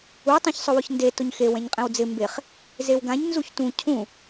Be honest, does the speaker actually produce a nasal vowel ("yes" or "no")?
yes